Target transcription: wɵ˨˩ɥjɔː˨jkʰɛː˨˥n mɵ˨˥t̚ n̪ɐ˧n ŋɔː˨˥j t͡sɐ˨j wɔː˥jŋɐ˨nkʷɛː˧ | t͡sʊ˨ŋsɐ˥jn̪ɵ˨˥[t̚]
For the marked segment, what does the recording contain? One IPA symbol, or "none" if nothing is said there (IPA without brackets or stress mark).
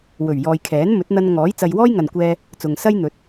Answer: t̚